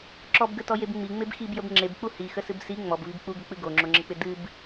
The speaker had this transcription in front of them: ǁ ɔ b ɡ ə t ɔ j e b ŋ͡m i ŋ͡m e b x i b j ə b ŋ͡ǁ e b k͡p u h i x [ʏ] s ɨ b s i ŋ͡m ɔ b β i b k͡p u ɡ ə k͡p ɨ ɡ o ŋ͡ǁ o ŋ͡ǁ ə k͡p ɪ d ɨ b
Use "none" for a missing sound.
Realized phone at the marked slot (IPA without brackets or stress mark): ə